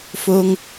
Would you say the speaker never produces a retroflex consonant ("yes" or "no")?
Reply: yes